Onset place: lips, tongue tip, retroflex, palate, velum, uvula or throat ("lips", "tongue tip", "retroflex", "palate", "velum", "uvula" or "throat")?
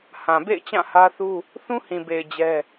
throat